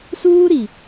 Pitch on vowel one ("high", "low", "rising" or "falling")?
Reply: high